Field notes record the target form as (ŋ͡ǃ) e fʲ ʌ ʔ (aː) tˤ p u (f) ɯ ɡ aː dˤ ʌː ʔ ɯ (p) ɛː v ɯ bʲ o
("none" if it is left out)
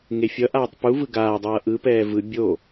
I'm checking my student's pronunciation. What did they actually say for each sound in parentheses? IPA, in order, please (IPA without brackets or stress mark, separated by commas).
ŋ, aː, v, p